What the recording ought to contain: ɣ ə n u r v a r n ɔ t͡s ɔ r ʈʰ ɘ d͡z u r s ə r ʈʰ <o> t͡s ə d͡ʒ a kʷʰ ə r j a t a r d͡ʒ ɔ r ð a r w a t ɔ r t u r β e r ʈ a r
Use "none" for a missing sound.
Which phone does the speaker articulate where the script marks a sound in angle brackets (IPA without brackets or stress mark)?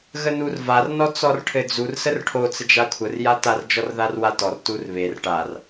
o